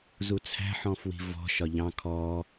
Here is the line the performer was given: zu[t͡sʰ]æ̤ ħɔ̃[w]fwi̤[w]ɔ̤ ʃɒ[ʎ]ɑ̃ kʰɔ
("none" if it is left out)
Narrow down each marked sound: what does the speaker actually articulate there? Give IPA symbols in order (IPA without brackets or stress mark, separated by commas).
t͡sʰ, none, v, ʎ